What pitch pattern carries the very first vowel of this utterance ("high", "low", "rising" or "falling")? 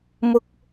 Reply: high